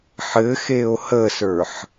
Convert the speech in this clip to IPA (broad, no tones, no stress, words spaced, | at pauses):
ħɘxeo̯ həsə˞ħ